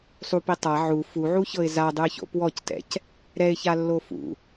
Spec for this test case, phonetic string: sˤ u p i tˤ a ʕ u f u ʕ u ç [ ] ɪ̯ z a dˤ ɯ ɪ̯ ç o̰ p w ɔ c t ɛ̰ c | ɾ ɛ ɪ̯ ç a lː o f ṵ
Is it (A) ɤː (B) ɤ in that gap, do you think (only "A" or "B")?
B